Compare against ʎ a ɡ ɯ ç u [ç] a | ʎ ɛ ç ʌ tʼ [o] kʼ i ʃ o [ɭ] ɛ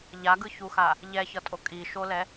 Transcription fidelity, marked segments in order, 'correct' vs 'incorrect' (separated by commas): incorrect, correct, incorrect